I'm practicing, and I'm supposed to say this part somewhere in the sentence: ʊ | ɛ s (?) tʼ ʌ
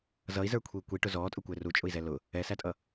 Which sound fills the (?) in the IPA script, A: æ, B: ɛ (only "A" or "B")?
A